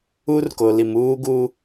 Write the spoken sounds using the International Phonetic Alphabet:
u˦rko˨li˨m uː˦ɡuː˦

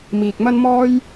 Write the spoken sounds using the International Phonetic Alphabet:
miː˨k̚mɐ˥nmɔː˥j

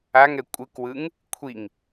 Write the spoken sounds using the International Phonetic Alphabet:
aŋɛ kʷʼɯkwɯŋ | kʷʰiŋ

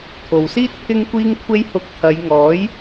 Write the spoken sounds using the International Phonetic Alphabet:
t̪ʰo˨wsiː˥t̚ pʰɪ˧ŋkʷiː˧ŋkʷʰe˧jhʊ˨˥k̚ t̪ʰɐ˨˧jŋɔː˨˥j

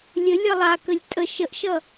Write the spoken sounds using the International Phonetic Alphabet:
lʲə lʲʌlˠakəlʲ tʼə ʃəʔʃʌ

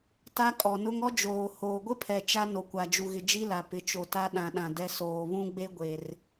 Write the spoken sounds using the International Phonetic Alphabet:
ta˦ kʼɔ˨nʊ˦ŋ ɔ˦d͡ʒoː˨ hoː˨ɡʷɪ˦pʰɛ˨ t͡ʃa˦ no˨kʷa˨d͡ʒu˨ɣɪ˨ d͡ʒi˦la˨ pɪ˨t͡ʃo˨ ta˦ ɗã˨ɗã˨ dɛ˦ soː˨βũ˦ɡ͡be˦ ɡʷe˨r

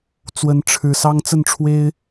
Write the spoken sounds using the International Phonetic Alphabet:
t͡swə˨˦n ʈ͡ʂʰɻ̩˨˩sɑ˦ŋ t͡sə˥˨nʈ͡ʂʰwe˦ɪ̯

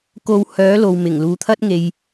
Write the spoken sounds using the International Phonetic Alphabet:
ko˧whœː˨˥ lo˨wmɪ˨˩ŋ luː˨˧t̪ʰɐ˥t̚ ŋe˧j

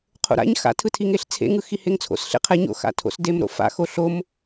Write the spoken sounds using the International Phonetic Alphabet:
qʰo̰ɾa̰ɲ xa̰tʰɯtʰi ŋeɬt͡sʰḛŋɯxi heŋt͡sʰo̰sɬḛqʰɛ ɲo̰xa̰tʰo̰sdem ɾo̰fa̰xo ɬom

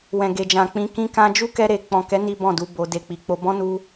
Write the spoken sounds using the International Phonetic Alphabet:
wɛ̃˨ ɡe˨d͡ʒã˨k͡pĩ˧ kĩ˧kã˧d͡ʒu˦ kɛ˦ ɾe˧ k͡pɔ̃˨kɛ˨˦ ni˦bɔ̃˦˨du˨˦ bo˧ de˧k͡pi˧ k͡po˧bɔ̃˦nu˦

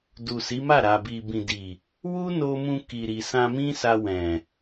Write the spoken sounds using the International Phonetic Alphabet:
du˨si˨˦ma˦˨ ɾa˨bi˨ bĩ˨di˨ | wu˦no˧mũ˧ ki˨ɾi˨ sã˧mĩ˦sa˧ wɛ̃˨

